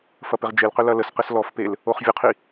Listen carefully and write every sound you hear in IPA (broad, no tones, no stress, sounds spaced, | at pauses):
f ɐ p ɪ ʁ d͡ʒ e l q ʏ l ɐ l ə s q ɪ s l ɔ f p e l | o χ vʲ ʊ qʰ i